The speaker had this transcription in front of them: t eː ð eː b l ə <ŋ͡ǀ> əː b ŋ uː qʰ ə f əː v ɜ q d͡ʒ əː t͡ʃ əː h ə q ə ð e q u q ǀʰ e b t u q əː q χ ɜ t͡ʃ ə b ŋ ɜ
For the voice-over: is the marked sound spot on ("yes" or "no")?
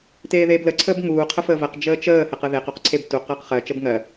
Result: no